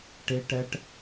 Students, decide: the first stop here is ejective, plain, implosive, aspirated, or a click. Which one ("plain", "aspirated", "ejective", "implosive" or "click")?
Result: plain